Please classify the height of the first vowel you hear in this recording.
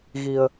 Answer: high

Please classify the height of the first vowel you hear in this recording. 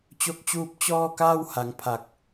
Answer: mid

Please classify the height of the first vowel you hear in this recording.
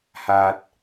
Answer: low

